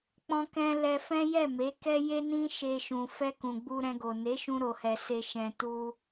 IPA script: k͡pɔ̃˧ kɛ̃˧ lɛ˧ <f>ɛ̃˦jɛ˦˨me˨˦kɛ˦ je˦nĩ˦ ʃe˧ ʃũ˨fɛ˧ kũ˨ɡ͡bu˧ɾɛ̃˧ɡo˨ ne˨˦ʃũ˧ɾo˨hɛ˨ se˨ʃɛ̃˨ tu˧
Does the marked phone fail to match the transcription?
no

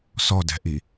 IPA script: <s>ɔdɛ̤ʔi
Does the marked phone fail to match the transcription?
no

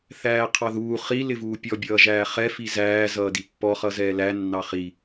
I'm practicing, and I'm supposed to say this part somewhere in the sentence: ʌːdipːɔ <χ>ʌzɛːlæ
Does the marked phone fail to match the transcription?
no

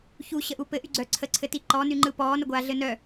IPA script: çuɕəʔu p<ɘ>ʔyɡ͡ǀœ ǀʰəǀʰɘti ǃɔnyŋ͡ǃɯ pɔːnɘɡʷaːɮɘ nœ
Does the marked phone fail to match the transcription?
no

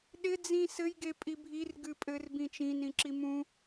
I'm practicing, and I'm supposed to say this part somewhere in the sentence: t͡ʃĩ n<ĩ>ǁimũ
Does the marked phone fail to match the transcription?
no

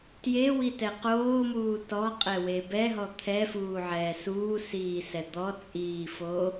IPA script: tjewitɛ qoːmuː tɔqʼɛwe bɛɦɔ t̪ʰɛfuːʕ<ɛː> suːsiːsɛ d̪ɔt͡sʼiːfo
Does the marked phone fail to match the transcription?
no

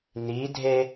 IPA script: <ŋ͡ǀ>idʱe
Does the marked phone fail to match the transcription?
yes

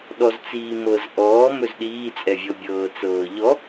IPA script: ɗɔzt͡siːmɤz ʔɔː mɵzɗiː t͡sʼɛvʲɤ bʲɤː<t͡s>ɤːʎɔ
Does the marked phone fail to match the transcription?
no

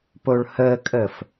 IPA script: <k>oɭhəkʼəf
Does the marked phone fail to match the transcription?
yes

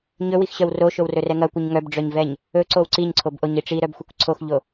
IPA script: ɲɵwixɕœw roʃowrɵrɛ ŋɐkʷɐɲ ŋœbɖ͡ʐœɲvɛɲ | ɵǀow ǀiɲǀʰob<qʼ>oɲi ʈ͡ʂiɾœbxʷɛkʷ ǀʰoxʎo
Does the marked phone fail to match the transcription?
yes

